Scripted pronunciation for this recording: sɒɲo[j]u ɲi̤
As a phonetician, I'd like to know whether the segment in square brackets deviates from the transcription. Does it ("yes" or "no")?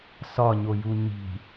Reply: no